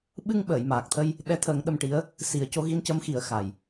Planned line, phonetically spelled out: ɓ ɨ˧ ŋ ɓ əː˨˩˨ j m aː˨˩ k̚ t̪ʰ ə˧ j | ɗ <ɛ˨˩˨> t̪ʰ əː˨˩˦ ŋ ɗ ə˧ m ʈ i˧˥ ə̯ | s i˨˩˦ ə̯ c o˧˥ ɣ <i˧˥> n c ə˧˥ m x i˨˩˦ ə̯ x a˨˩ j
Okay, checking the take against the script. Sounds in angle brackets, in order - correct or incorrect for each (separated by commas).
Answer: incorrect, correct